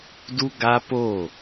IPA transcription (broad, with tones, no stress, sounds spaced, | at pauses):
d u˦ ɡ a˦ p oː˦˨